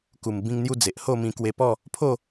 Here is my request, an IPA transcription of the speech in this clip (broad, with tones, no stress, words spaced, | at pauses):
ku˨˩mbĩ˧ŋn̪ju˧ d͡ze˨ʔho˥˧mĩ˧ kwe˧pɔ˥˧ | pʰo˥˧